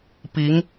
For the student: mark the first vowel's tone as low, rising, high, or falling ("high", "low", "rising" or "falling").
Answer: rising